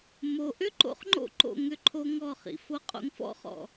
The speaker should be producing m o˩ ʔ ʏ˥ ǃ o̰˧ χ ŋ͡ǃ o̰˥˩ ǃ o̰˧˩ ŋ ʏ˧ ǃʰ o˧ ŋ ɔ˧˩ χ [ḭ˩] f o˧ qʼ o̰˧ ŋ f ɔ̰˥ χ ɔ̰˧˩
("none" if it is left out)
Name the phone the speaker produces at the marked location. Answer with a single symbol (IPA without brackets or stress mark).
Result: ḭ˩